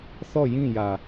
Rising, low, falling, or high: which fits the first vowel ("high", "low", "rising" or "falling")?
falling